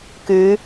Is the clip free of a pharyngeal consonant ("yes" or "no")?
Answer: yes